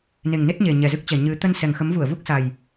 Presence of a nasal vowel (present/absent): absent